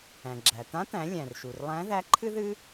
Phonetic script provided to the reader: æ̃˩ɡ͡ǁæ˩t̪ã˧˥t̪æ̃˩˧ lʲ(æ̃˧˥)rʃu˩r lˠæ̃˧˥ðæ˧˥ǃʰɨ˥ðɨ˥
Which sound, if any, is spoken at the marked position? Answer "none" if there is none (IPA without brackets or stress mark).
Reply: æ̃˩